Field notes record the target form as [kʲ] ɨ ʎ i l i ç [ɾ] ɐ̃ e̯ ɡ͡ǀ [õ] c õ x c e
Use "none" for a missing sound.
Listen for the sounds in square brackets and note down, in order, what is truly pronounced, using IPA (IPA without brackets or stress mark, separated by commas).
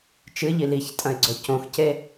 t͡ʃ, tʼ, o